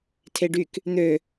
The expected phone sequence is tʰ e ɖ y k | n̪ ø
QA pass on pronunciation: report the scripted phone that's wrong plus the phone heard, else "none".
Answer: none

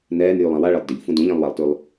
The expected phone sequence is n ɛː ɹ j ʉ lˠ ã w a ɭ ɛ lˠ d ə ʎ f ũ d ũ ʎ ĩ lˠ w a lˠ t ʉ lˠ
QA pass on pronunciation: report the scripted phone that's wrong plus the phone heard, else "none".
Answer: ɹ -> n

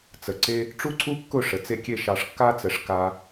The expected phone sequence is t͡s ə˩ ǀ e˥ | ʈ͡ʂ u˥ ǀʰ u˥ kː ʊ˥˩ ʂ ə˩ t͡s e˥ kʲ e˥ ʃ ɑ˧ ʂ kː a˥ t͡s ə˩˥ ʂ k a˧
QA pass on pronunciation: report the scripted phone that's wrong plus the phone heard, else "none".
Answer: none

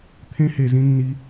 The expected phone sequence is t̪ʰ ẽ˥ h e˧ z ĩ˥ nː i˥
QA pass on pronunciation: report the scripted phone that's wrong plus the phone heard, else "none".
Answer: none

